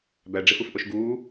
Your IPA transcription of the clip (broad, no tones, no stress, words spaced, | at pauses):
bæɖ͡ʐefɯfʔoʃ ɡuː